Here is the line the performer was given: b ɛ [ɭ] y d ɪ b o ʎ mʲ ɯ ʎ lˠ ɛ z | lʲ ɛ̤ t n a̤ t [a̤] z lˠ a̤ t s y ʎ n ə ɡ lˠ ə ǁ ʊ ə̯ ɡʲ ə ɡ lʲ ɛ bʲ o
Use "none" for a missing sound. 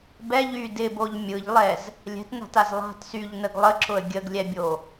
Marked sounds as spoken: ʎ, a

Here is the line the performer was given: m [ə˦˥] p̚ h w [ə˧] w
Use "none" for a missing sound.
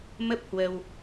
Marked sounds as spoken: ə˦˥, ə˧

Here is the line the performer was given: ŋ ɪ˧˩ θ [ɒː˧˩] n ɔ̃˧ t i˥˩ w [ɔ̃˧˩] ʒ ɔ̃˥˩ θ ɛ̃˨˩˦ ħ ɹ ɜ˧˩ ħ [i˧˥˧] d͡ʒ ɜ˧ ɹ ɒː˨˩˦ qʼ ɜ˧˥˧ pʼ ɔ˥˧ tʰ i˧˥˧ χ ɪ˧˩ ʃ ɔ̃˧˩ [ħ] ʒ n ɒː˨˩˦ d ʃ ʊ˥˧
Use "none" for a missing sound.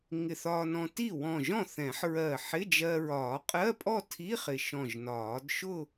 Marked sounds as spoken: ɒː˧, ɔ̃˧˩, ɪ˧˥˧, none

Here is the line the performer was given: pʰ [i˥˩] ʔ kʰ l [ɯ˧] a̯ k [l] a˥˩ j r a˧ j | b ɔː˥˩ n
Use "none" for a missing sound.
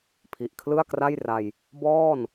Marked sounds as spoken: i˨˩, ɯ˥˩, r

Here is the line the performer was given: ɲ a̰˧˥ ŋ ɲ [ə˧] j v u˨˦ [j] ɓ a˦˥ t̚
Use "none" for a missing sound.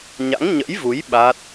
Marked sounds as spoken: ə̰˧˥, j

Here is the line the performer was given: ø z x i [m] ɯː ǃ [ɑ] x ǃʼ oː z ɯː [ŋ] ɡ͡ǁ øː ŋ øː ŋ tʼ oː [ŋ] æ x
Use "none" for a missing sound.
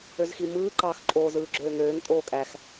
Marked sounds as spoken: m, ɑ, none, kʼ

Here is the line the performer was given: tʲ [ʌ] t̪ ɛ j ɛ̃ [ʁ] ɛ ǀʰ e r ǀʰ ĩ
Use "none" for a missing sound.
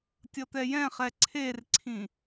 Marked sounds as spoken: ʌ, χ

